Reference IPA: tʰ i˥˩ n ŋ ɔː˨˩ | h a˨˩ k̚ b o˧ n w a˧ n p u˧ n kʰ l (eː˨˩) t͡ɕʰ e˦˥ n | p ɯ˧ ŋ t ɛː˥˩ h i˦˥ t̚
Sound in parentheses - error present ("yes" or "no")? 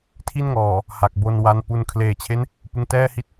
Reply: no